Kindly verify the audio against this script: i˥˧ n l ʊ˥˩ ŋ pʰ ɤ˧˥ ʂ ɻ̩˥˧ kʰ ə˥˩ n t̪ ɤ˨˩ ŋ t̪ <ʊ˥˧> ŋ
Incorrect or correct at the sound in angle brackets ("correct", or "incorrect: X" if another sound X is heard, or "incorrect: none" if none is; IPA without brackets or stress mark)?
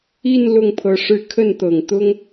incorrect: ʊ˥